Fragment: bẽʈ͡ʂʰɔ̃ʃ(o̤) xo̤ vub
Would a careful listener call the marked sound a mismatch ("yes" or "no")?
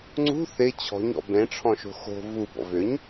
no